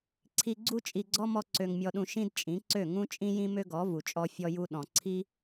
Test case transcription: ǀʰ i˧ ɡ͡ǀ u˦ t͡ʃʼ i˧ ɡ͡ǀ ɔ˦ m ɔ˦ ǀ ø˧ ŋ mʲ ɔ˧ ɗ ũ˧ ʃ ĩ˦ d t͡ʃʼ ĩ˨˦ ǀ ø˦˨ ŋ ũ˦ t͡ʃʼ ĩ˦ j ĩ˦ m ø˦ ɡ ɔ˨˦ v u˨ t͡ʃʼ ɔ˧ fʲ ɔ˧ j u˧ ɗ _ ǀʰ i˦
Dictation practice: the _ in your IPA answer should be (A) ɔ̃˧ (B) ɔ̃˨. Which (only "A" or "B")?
B